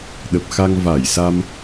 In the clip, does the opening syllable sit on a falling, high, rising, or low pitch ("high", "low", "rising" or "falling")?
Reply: low